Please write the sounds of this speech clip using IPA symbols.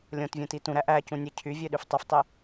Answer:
lʲ õ t vʲ ũ t i t ũ ɾ æ ʔ æ c ũ nʲ e cʰ y vʲ ø ɗ y f tˤ y f tˤ e

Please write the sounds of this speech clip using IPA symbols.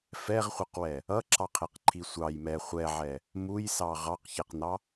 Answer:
f ɛ ʁ χʷ ɛ q w ɛ | ʌ ǁ ɑ qʰ ɛ q ǃʰ i sʷ ɑ j m ɛ χʷ ɛ ʕ ɛ | m u j s ɑ ʁ ɑ q ç ɛ q n ɑ

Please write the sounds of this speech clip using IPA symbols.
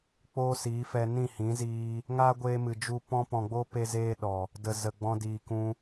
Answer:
k͡p oː˦ s iː˨˦ f ɛ˧ n ĩ˦˨ h ĩ˨˦ z iː˧ | ŋ aː˦ ɡʷ eː˧ m ɨ˨ d͡ʒ u˦ p ɔ̃˧ p ɔ̃˨ ɡ͡b oː˧ p e˦ z eː˦ ɗ ɔ˨ | d ə˨ z ə˨ ɡ͡b ɔ̃˧ d iː˨ k ũ˧

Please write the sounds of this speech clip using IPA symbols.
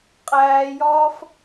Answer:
qʼ æː j ɒː f

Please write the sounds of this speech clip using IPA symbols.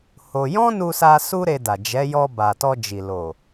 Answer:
h o˧ j ɔ̃˦ n u˧ s a˧ s u˦ ɾ e˧ d a˨ d͡ʒ ɛ˨˦ j ɔ˧ b a˨ t ɔ˧ d͡ʒ i˨ l o˨

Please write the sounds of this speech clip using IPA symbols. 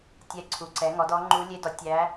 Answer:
tʲ ɛ˧˥ ǀʰ u˩˥ ǀ ɛ˩˥ ŋ ɔ˩˥ d ɔ˧˥ ŋ͡ǃ u˧˥ lʲ e˧˥ d ɔ˩˥ tʲ æ˧˥

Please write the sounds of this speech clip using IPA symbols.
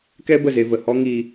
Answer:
k ɛ˦ b ə˦˨ z e˧ v ə˨ h ɔ˦ ŋ iː˧

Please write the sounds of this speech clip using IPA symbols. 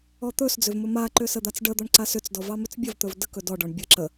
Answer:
ɔ t̪ ɵ s d͡z ʏ v m ɵ m a ǃ ʏ s ə d̪ a t͡s ɖ ə d̪ ɔ ɳ ǀ a s ʏ t͡s d ɔ v ɑ m ʏ t͡s bʲ ə v t̪ ɵ v d ə k ɵ d ɔ ɖ ɔ ɳ bʲ ə ǁ ə

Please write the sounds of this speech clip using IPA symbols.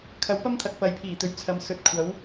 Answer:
kʰ ɐ˨˥ w p ɐ˥ m t̪ʰ ɐ˨ k̚ p ɐ˨ j pʰ iː˨˩ t̪ ɵ˨ ɥ t͡sʰ ɐ˨˧ m s ɵ˨˥ t̚ kʷʰ ɐ˨˥ w

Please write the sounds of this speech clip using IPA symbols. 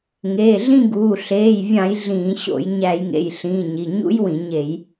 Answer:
ŋ eː˩˧˩ ɮ ĩ˦˨ ɡ uː˩˧˩ ɬ eː˩˧˩ j vʲ ɑ̃˧˩˧ j ɮ ĩː˧˩˧ ɕ o̰˧˩˧ j ɲ æ˧˩˧ j ŋ ḛ˩˧˩ j ɬ ĩː˩˧˩ ɲ i˩˧˩ ɲ ṵ˦˥ j w ĩ˧˩˧ ɲ e˧˩˧ j

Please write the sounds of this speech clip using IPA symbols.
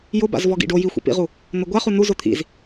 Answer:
j ʊ b a̰ z v ɔ ɡ ḭ ɖ o j i xʷ ḭ p ḭ ʁ u | n ʊ ɡʷ a χ u n u z ʊ t̪ʰ ḭ z

